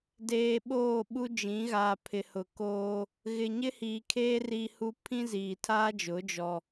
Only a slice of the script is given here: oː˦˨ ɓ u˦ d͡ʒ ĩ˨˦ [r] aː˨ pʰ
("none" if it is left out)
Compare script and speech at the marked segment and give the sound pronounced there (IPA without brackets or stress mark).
ɣ